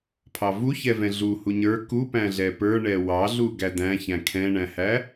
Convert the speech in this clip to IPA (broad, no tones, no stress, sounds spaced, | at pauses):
pʰ ɑ v u ç ɛ v ɛ̃ ɮ u h u ɲ ə˞ k u p æ̃ ɮ ɛ p ə˞ ɳ ɛ w ɑ ɮ u ɡ æ d æ̃ ç æ̃ kʰ ɛ̃ ɳ æ̃ h æ